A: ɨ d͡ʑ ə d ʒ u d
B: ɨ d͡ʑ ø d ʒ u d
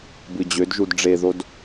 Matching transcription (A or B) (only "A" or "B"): B